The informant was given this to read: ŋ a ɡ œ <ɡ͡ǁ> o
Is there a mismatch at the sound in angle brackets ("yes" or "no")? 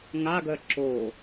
yes